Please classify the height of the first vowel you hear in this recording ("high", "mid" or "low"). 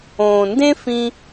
mid